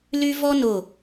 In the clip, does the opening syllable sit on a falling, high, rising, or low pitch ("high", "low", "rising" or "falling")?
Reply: high